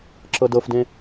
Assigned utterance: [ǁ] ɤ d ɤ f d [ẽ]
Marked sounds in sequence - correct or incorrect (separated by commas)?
correct, correct